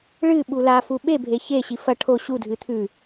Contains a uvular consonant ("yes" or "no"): no